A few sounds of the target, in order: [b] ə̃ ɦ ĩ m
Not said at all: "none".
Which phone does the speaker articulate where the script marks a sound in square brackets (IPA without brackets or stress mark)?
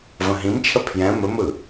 v